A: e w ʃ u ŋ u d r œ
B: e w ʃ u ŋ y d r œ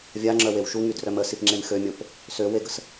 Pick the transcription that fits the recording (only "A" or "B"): B